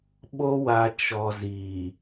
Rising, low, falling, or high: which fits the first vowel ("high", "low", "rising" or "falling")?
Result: high